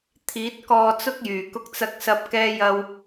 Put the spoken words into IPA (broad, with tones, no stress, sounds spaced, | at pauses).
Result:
t̪ʰ iː˨˥ t̚ k ɔː˧ t͡s ʊ˥ k̚ j yː˨˩ k ʊ˨ k̚ t͡s ɐ˨ k̚ s ɐ˨ p̚ k ɛː˧ j ɐ˧ w